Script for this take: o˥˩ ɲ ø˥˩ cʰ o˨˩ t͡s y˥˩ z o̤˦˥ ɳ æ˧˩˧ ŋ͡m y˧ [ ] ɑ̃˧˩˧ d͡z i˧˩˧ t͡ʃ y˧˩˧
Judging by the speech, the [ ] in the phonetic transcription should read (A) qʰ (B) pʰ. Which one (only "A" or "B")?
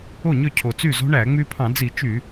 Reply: B